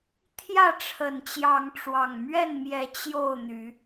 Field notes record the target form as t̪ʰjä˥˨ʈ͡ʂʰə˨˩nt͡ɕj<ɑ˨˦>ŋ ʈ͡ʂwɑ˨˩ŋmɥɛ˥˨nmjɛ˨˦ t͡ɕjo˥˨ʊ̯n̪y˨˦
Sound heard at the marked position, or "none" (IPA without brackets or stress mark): ɑ˨˦